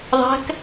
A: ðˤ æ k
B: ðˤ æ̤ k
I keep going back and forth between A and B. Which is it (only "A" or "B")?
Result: B